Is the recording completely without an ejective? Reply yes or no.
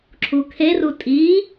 no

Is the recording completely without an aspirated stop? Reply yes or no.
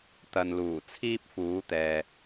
no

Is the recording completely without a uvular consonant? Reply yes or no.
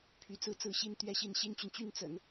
yes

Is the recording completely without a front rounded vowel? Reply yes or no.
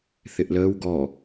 yes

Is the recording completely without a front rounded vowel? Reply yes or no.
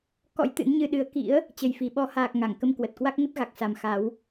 yes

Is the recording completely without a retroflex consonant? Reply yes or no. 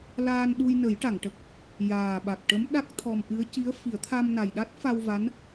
no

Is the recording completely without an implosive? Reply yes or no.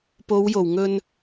yes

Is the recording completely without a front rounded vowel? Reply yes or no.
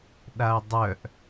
no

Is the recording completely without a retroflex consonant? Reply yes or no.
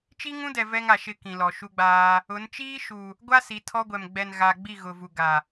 yes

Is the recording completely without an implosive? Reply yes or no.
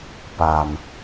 yes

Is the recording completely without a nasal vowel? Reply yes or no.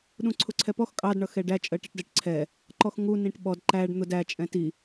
no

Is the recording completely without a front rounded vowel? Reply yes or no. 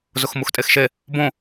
yes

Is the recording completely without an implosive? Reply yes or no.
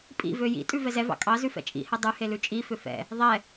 yes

